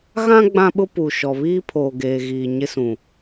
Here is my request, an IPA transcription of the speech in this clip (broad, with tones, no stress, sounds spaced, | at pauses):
ɣ ã˦ ɡ͡b ã˦ ɓ ʊ˦ p u˨ ʃ ɔ˨ β iː˦ pʰ oː˨ ɡ eː˨ ɣ iː˨ ɲ ɪ˦ s ũ˨